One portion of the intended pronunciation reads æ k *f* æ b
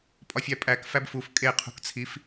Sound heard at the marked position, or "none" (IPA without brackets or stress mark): f